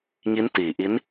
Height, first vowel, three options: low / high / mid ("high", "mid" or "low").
high